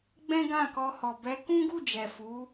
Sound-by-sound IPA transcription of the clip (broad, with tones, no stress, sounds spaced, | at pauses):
ɡ͡b ɛ̃˦ ɡ ã˦˨ k ɔ˧ h ɔ˨ b ɛ˨˦ k ũ˦ ɡ u˦˨ d͡ʒ ɛ˨ f u˨˦